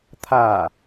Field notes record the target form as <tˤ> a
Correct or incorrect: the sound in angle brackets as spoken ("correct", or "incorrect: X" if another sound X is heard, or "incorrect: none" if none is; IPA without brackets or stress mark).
incorrect: t̪ʰ